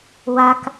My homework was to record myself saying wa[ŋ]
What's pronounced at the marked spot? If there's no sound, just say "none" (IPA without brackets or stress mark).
k